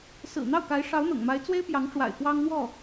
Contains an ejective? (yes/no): no